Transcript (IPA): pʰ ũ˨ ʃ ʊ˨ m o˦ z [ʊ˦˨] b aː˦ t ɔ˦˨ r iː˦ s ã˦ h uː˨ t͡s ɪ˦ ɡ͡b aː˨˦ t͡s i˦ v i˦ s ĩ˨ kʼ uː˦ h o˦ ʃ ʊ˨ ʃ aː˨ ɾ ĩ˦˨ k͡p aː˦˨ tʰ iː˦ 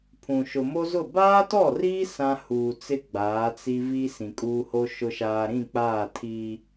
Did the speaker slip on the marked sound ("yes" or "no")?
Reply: no